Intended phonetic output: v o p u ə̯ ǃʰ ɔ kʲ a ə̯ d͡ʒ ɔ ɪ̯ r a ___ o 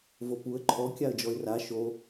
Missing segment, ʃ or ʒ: ʃ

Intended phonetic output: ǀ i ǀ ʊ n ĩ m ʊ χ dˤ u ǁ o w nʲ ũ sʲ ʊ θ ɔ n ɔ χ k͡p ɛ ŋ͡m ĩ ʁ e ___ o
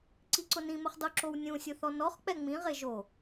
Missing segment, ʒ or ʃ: ʒ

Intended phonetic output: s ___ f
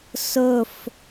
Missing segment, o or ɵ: ɵ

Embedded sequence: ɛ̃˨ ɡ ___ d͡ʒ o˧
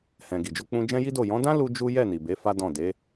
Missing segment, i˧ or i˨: i˨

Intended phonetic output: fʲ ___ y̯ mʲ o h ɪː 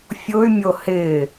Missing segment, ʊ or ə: ʊ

